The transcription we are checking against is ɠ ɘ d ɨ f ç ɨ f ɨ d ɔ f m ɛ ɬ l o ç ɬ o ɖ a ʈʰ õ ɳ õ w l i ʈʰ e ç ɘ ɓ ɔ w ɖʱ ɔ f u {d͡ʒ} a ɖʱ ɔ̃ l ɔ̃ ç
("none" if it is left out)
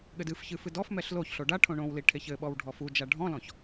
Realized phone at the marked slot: d͡ʒ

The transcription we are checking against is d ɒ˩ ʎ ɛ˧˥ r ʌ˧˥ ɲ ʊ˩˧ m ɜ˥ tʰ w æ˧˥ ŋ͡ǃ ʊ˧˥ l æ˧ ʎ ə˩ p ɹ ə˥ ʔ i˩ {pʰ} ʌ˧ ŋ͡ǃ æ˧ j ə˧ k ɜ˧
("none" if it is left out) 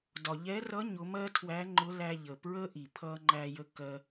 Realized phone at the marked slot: pʰ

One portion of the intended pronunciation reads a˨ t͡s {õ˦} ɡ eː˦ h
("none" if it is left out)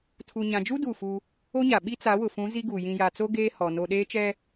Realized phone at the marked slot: o˦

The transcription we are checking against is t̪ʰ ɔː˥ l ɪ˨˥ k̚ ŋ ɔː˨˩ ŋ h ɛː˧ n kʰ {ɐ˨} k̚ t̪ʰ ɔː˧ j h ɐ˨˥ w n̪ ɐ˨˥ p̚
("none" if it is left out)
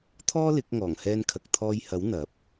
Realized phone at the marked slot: ɐ˨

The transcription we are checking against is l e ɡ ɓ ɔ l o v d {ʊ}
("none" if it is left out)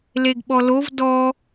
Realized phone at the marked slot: ɔ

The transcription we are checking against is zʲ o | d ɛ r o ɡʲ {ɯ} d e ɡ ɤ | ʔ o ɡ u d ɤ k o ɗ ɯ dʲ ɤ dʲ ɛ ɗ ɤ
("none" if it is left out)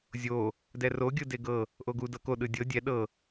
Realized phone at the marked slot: ɯ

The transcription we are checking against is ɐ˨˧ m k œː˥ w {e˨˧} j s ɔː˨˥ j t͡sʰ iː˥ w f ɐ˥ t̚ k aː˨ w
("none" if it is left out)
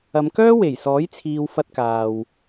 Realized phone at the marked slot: e˨˩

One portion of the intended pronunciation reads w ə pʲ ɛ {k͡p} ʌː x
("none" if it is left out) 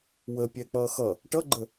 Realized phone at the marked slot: k͡p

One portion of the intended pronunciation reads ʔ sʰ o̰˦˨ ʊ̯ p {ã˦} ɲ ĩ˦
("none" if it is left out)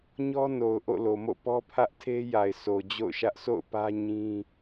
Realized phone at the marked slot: ä˦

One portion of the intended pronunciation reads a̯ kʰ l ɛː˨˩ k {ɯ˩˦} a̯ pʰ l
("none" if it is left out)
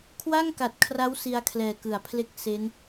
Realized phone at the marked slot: ɯ˩˦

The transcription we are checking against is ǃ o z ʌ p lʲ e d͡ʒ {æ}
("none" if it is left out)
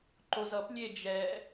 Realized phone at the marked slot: ɛ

